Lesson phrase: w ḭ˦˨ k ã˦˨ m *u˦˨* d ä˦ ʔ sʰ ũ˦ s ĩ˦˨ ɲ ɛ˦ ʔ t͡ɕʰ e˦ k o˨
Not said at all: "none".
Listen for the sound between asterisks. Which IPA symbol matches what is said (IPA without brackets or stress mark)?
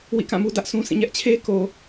u˦